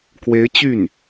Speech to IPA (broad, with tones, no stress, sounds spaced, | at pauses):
k w e˧˥ ɪ̯ t͡ɕ y˥˩ n